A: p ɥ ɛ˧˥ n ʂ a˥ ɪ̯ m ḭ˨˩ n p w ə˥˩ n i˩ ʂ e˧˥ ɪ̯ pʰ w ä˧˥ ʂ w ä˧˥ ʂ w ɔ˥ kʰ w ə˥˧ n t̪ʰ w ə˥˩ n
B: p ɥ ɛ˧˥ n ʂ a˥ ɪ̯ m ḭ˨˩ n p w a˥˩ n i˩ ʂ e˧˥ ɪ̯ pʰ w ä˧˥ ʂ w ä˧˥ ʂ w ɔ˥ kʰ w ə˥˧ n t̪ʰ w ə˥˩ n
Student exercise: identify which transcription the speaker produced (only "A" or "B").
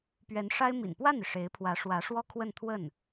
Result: B